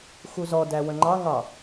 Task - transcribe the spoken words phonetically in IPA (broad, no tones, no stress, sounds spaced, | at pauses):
x u z ɔ d æ w ə̃ ŋ͡ǃ ɑ ŋ ɑ